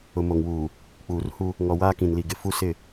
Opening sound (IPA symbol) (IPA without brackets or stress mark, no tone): ʊ